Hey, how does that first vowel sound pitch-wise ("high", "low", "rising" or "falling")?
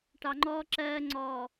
low